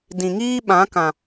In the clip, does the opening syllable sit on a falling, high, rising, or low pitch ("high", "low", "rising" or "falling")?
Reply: low